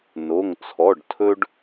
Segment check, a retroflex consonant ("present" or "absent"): present